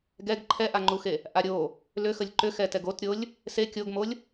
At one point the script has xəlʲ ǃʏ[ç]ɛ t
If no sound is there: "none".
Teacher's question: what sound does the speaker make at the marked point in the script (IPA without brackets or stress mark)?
x